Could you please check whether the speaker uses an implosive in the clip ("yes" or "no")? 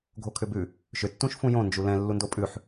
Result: no